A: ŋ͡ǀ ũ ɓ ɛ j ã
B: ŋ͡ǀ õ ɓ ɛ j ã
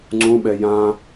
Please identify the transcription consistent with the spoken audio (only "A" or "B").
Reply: A